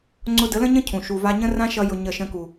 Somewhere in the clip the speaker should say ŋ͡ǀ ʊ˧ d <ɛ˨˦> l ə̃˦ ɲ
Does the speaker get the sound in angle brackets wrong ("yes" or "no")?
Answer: yes